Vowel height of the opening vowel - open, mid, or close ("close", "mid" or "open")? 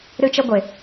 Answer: close